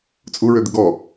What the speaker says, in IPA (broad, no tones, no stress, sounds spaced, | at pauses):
t͡sʼ u ɹ ø d̪ ɪ ɡ ɔ